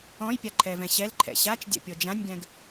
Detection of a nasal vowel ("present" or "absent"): present